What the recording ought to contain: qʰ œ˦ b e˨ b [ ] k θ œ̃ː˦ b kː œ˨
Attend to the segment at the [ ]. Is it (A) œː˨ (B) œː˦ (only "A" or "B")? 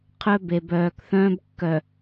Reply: A